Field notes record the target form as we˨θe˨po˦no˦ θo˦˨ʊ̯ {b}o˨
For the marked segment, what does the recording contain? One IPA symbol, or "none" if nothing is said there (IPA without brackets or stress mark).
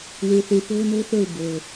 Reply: b